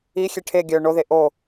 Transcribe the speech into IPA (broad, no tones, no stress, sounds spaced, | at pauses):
i xʲ e ʈʰ e ɡʲ œ ɳ o ð e ʔ o